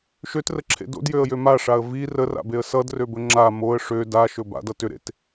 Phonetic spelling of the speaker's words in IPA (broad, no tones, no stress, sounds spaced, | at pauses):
ʃ ø t r ə ǁʰ ḛ d o̰ d j ø ə̯ j ø m a ʂ a ə̯ v i r ə r a̰ b e ə̯ s ʌ d r ø b ɵ ŋ͡ǁ a m o ə̯ ʂ ø d a ʃ ɵ b a̰ d ʌ t ʏ ɾ ḛ t